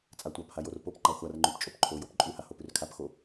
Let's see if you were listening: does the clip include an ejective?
yes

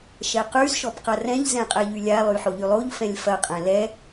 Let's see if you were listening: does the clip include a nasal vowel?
yes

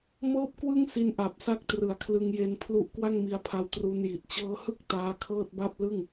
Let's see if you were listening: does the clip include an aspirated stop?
yes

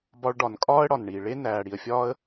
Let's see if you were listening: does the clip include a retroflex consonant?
yes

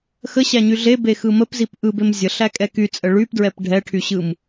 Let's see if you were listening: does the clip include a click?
no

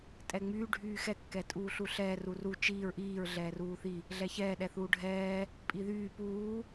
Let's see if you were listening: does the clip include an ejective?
yes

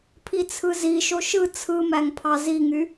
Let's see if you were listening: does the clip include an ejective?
no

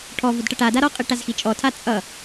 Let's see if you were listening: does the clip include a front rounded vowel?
no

